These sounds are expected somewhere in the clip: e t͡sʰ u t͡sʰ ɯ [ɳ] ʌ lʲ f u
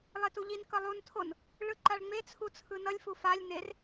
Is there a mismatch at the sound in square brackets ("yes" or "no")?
yes